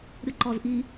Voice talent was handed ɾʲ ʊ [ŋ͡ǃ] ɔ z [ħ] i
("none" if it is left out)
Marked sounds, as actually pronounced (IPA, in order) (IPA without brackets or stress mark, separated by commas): ǃ, ʔ